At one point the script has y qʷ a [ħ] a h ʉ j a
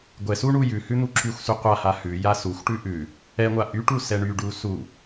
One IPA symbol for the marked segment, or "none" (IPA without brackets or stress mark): h